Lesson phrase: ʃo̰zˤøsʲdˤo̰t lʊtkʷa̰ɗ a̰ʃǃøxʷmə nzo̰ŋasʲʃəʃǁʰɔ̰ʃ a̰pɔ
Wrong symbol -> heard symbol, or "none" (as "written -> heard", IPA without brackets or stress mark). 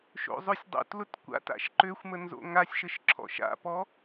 ɗ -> t